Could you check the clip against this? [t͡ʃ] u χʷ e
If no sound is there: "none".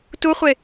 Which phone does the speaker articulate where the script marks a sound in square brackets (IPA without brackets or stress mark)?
t